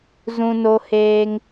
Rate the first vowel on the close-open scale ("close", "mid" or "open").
close